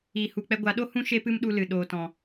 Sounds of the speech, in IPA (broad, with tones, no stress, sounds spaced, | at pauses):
iː˨ h u˨ k͡p ɛ˧ ɡʷ a˨˦ ɗ o˦ h ũ˦ ʃ e˦ p ɨ˦ m ɗ u˧ l ɨ˨ ɗ oː˨ t ɔ̃˨